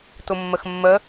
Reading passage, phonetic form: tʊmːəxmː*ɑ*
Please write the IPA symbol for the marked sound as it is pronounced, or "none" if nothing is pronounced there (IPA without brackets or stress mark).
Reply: ə